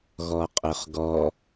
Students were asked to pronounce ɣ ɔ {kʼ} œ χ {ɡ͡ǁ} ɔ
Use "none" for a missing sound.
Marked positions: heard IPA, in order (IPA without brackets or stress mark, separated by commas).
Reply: qʼ, ɡ